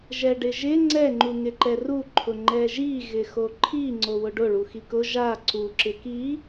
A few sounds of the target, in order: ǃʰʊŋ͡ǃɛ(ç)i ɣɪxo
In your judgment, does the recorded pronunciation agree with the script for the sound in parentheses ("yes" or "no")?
no